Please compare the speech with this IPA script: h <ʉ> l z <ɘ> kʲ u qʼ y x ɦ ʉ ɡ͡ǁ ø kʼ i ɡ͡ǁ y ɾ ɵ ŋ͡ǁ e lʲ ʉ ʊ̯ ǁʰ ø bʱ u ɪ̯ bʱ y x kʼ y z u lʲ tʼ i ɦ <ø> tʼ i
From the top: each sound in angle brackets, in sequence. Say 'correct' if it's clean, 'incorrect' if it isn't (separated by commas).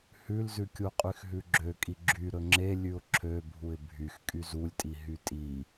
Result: correct, incorrect, incorrect